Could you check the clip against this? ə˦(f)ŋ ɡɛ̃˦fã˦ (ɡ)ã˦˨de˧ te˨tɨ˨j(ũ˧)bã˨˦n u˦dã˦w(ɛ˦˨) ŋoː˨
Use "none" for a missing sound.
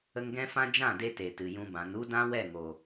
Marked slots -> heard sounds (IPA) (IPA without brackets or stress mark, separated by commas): none, d͡ʒ, ũ˧, ɛ˦˨